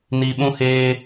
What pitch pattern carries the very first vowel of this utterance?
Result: low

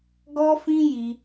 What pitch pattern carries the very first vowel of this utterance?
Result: high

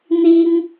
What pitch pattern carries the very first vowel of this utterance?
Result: high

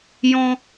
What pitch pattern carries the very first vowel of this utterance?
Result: high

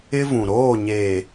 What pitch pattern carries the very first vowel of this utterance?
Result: high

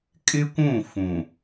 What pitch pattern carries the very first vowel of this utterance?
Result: high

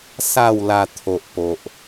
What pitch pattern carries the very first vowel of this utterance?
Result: low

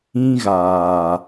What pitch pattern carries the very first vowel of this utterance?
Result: high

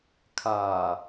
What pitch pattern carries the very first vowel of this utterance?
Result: low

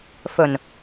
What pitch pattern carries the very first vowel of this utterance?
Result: low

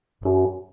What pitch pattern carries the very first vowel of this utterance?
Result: high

